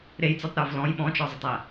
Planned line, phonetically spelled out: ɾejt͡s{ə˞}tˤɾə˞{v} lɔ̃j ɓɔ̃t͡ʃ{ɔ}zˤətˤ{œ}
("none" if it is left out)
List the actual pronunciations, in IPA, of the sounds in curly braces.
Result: ə˞, v, ɔ, æ

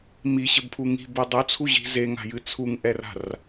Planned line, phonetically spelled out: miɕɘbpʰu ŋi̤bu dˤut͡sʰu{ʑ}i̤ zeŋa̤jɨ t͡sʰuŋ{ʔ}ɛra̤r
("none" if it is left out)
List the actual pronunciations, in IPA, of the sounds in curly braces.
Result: ʑ, ʔ

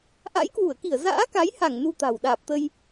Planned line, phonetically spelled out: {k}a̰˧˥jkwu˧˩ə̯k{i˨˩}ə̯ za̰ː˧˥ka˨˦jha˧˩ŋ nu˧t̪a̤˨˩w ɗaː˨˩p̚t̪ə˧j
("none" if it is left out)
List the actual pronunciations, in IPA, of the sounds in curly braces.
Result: ʔ, i˧˩

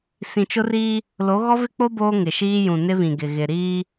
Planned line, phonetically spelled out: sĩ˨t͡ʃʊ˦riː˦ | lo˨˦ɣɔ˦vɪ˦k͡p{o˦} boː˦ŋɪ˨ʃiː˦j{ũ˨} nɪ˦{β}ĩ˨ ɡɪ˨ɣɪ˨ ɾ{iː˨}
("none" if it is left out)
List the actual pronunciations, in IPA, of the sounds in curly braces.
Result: o˦, ũ˨, β, iː˦

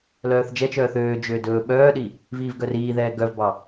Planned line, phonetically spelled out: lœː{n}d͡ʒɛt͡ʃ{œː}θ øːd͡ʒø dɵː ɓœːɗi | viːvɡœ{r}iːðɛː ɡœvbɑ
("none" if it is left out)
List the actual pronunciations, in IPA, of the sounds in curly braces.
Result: θ, œː, r

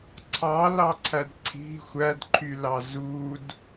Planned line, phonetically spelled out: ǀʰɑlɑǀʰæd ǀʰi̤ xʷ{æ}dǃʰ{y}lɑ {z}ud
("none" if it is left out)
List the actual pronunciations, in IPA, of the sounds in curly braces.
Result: æ, y, z

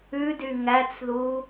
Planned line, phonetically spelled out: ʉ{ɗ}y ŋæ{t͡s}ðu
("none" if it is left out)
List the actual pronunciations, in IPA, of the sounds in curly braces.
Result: d, t͡s

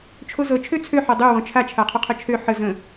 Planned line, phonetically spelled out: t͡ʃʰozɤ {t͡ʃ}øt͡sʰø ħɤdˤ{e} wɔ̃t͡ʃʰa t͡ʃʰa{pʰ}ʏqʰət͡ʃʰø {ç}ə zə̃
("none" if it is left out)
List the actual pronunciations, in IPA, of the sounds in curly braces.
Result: t͡ʃʰ, ø, qʰ, ħ

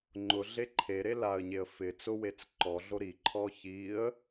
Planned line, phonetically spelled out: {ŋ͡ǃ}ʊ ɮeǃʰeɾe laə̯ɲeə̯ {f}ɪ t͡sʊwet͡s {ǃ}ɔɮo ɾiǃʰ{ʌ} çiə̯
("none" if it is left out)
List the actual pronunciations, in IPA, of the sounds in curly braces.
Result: ŋ͡ǃ, f, ǃ, ɔ

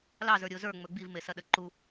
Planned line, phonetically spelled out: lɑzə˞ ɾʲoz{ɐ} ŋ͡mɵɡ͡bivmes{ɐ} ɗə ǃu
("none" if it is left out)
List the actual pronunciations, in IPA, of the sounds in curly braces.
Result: ə˞, ɐ

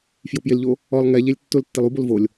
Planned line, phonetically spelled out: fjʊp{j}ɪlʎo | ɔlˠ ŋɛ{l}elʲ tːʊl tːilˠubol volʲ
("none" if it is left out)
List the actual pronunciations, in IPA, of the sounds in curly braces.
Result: j, ʎ

